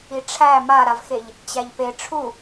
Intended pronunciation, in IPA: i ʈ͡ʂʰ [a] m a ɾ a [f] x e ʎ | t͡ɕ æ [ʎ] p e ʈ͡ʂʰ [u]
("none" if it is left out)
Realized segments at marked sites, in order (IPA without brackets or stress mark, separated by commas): æ, v, ʎ, u